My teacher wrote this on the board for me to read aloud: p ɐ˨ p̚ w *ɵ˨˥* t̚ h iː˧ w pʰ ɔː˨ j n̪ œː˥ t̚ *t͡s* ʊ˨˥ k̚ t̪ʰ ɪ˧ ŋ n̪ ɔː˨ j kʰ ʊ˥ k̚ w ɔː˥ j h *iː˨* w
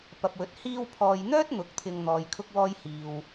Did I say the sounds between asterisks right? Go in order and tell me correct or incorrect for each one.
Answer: correct, incorrect: n̪, correct

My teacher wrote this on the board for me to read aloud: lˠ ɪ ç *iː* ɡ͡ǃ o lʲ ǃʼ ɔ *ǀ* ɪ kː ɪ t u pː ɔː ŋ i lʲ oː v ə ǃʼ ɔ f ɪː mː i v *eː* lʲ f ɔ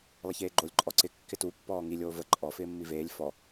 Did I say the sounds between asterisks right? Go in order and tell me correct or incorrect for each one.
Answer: incorrect: eː, correct, correct

